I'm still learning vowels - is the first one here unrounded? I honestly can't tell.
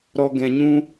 no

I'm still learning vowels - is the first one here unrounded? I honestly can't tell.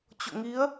no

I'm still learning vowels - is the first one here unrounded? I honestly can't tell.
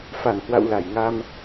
yes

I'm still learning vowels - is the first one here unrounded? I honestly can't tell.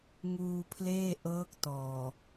no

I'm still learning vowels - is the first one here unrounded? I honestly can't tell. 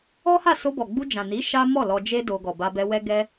no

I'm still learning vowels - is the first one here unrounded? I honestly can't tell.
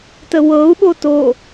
yes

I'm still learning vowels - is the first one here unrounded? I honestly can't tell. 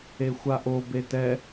yes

